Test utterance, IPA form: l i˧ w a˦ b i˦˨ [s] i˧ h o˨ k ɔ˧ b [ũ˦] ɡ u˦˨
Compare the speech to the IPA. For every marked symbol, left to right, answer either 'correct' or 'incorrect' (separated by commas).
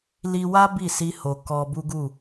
correct, incorrect